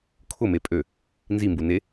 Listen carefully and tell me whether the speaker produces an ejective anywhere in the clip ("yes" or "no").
yes